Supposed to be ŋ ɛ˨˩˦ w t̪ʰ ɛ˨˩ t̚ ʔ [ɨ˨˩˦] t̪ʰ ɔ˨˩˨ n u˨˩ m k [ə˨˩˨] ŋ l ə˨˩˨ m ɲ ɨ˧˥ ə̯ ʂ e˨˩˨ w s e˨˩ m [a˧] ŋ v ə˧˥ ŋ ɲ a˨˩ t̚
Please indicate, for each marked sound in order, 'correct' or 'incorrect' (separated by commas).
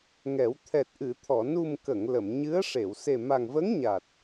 incorrect, correct, incorrect